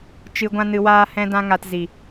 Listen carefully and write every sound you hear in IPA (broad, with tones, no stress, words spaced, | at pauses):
t͡ʃɨ˧ ɡʷã˦nɨ˧waː˦hɛ̃˦ dã˦ŋa˧t zi˨